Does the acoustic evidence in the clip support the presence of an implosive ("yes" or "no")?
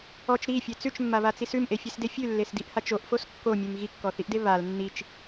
no